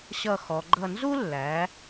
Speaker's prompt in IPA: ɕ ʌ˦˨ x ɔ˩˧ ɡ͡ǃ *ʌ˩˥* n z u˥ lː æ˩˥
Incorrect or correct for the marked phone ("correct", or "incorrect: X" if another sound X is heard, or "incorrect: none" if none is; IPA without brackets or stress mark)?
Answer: incorrect: ʌ˦˨